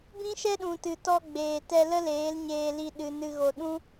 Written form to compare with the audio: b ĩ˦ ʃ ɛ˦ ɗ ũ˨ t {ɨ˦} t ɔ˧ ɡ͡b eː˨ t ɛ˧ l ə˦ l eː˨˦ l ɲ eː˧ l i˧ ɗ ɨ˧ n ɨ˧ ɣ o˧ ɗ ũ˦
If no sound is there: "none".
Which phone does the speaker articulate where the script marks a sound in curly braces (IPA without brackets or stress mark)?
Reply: ɨ˨